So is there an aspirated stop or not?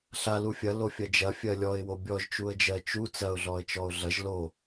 no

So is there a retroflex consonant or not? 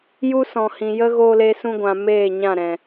no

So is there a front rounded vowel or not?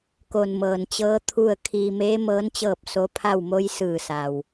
no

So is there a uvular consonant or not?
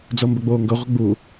yes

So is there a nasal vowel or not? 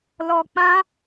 yes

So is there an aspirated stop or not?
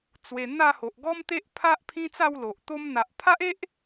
yes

